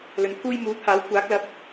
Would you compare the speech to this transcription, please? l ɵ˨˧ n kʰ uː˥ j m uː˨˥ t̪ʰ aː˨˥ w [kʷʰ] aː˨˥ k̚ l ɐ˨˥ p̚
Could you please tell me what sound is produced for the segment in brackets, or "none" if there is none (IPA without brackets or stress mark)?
kʷʰ